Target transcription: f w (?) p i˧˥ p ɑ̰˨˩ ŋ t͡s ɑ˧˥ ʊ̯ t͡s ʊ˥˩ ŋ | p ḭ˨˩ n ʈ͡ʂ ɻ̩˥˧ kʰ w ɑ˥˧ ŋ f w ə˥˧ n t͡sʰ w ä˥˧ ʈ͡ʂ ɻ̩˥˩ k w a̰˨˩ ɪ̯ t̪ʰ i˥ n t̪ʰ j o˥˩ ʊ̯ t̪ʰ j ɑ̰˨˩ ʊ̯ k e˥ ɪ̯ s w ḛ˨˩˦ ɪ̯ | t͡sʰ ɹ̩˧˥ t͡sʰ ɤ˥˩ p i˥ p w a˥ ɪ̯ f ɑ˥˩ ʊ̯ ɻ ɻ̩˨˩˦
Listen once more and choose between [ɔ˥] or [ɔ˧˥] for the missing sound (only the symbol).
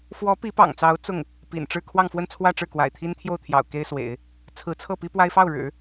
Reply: ɔ˧˥